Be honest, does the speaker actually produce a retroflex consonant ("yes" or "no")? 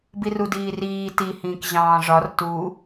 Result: yes